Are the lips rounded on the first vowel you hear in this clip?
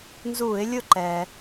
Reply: yes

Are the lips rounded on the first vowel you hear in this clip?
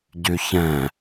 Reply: yes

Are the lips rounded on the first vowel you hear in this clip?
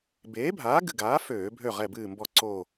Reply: no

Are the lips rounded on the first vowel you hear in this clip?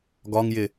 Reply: yes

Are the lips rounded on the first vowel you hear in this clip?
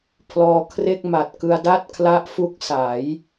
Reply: yes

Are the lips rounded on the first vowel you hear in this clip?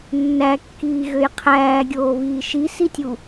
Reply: no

